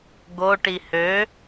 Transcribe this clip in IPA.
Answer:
ɡ o ʈ i h ø

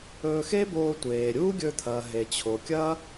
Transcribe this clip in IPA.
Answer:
ɵː˧ x e˥ b oː˧ tʷ eː˩ ɾʲ uː˥ ɡʲ ɵ˧ t̪ʰ ɐː˩ ɦ e˩ t͡ɕʰ o˩ kʲ ɐː˥

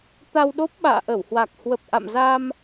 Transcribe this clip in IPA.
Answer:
t̪ a˧ w ɗ o˦˥ p̚ ɓ a̰ː˧˨ ʔ ə˧˩ w h w a˨˩ k̚ h w ə˨˩ p̚ ʔ a̰˧˨ m z a˧ m

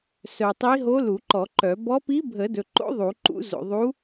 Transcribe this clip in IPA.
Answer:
s œ˨ tˤ i˧˥ ɦ o˧˥ l u˨˩˦ ǃ ɔ˨˩˦ ǃ œ˨˩˦ b ɔ˧˥ p i˧˥ bʱ ə˨˩˦ d ɵ˨ ǃ o̰˧˥ ðˤ u˨˩˦ ǃ ṵ˧˥ z o̰˨ ðˤ u˧˥

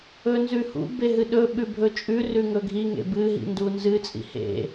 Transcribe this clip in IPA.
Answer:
ɵ n z ʉ h ṵ b e ɦ ɨ ɗ ɵ ɓ ʉ bʱ ɵ t͡ʃʼ ʉ r ʉ ŋ ɵ ɡʱ i ŋ ḛ b ɨ ɦ ḭ n d u n z ɨ t͡sʼ ḭ h ḛ

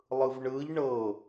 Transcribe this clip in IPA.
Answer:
lˠ ɯ v ɳ ɯ ʎ ɳ ɤ

